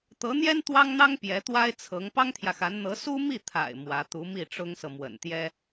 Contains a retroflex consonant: yes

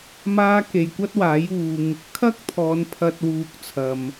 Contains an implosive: no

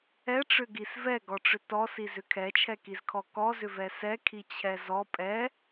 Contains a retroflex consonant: yes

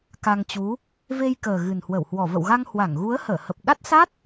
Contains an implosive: yes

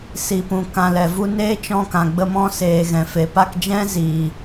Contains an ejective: no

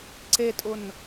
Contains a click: yes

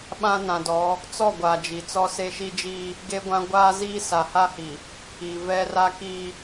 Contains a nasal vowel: yes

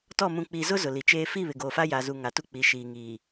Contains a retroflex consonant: no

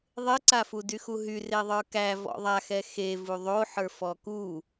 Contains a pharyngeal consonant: yes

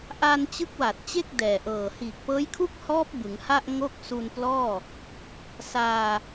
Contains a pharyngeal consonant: no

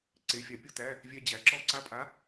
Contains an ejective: yes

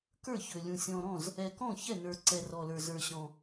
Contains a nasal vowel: yes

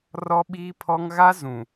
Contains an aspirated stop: yes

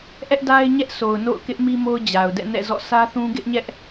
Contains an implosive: no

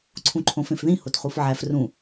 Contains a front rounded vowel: no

